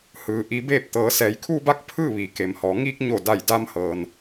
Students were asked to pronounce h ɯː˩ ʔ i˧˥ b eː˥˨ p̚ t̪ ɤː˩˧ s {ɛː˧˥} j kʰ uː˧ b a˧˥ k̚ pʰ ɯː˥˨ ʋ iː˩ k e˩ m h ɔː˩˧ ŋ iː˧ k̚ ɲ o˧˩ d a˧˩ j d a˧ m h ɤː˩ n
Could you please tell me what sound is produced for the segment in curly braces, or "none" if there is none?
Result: ɛː˩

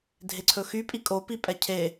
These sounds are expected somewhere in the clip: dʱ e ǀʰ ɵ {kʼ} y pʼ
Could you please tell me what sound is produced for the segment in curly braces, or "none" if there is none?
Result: x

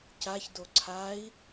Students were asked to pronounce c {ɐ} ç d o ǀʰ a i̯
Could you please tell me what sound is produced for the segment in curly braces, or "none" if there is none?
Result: a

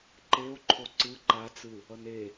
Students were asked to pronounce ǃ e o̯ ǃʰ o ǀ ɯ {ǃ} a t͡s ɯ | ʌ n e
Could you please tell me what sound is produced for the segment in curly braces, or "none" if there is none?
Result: ǃ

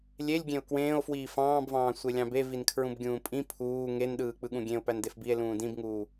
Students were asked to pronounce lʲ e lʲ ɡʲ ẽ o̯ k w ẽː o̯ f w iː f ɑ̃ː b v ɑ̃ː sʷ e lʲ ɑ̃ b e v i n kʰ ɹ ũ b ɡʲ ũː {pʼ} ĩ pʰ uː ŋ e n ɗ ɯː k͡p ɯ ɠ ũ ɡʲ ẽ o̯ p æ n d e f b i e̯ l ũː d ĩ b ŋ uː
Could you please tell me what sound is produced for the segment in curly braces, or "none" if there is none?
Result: pʼ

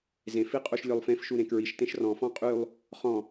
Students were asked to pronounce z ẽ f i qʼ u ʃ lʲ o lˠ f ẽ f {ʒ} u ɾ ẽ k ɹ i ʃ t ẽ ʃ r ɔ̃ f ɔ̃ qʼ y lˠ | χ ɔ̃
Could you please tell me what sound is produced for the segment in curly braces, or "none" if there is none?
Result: ʃ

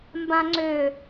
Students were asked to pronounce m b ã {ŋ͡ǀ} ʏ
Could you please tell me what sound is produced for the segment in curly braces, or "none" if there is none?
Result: ŋ͡ǀ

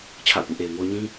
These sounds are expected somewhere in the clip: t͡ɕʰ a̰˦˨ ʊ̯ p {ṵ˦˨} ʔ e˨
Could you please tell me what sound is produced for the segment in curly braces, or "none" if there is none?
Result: ṵ˦˨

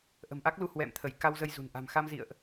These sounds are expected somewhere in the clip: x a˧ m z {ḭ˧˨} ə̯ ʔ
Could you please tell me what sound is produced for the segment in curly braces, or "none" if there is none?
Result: ḭ˧˨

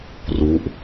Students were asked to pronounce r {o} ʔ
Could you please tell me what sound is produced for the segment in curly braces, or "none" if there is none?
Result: u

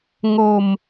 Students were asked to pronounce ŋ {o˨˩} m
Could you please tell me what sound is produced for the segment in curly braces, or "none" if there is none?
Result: o˧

